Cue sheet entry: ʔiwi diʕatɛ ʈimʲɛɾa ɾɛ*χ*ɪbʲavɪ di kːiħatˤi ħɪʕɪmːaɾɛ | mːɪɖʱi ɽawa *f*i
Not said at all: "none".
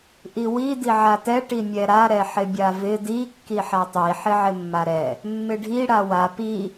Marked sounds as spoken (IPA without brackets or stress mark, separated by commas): ħ, p